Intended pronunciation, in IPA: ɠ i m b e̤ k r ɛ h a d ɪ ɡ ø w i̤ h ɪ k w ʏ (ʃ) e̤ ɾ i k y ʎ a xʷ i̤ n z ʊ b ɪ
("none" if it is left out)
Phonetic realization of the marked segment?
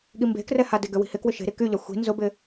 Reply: ʃ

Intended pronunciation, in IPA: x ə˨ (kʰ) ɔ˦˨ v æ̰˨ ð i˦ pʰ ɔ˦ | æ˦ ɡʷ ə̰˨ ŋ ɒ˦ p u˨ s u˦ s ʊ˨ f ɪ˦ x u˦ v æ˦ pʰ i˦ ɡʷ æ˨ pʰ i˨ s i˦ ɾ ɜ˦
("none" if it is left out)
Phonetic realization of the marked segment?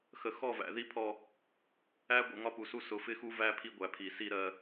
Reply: x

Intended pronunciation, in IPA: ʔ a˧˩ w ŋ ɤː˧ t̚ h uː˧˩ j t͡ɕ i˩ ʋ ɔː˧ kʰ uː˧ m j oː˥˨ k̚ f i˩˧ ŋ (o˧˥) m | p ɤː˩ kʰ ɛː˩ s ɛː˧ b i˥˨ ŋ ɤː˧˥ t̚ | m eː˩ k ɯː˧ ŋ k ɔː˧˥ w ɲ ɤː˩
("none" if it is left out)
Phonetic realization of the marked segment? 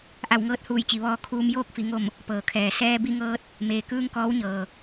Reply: o˧˩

